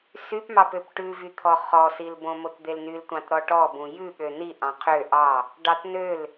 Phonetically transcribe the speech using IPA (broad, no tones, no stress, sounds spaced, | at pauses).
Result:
s y p m ɑ p ø p ʈ ʉ v y t̪ʰ ɔ χ ɔ s i l b õ m o t d̪ e l n y l tʷ ɑ̃ t ɾ ɔ ʈ ɔ b ũ j ʉ ɠ ø n i ʔ ɑ̃ qʰ ø ʔ ɑ | ɖ ɑ t n ø l